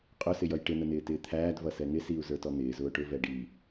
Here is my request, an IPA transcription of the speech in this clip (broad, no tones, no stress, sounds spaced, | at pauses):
qʼ ʊ s ɪ j ʌ j ʈ ɪ n̪ ə n̪ ɪː t ɪː t̪ʰ æː d v ʌ s ɛ ŋ ɪ s i u̯ z ə˞ t ɔ n̪ ɪː z ʊː ʈ ʊ v ɛ ɖ i